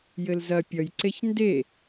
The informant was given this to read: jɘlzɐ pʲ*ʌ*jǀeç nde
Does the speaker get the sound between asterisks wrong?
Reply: no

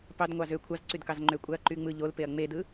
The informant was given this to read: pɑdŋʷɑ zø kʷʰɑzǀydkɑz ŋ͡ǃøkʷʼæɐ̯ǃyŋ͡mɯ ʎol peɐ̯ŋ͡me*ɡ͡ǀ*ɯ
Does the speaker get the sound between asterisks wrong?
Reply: yes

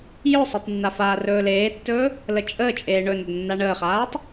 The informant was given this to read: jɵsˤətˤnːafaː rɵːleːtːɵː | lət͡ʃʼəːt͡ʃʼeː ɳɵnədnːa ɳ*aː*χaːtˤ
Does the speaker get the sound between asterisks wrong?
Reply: yes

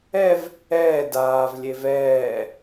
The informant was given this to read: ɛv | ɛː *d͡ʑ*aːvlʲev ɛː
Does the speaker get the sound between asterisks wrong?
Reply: yes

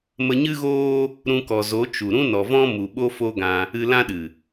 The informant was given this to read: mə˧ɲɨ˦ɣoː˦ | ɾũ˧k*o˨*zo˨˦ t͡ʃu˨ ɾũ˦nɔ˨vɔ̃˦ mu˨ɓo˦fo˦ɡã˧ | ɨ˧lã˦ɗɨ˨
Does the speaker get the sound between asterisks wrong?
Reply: yes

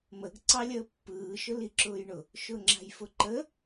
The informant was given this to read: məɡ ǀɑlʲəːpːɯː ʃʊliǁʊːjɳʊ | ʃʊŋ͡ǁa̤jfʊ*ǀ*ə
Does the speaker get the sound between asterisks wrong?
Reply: yes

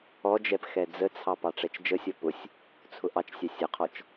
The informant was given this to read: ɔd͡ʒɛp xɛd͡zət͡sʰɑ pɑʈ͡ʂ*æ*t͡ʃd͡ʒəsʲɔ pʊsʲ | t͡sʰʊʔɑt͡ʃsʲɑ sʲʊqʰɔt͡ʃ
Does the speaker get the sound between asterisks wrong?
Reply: yes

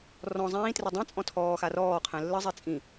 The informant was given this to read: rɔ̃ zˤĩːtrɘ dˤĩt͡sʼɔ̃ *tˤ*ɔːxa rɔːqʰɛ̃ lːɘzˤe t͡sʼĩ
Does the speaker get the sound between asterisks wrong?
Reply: yes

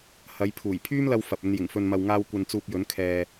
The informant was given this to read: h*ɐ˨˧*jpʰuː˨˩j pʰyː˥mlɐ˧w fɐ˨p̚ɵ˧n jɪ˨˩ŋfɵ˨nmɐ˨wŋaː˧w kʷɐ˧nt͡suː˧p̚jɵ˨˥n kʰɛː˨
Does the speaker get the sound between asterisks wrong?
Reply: no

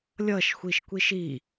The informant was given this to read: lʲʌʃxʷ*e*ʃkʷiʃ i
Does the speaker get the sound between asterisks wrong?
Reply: yes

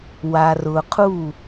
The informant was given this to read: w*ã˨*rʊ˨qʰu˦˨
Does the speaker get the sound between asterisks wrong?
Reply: yes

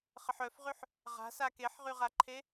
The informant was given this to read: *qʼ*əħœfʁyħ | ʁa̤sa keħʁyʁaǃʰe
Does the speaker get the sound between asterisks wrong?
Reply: yes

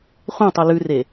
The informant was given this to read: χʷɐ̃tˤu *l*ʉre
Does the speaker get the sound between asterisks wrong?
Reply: no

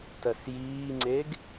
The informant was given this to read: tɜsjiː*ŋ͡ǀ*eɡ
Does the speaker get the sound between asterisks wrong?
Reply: no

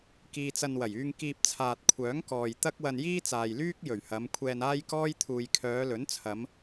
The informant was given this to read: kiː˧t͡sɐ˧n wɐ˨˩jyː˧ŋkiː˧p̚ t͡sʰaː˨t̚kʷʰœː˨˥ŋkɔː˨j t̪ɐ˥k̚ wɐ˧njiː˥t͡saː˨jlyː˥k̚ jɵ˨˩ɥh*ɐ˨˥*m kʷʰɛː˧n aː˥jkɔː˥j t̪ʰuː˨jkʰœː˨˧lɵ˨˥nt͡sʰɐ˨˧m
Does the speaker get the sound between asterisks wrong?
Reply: yes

